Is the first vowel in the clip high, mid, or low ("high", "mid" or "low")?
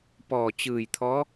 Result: mid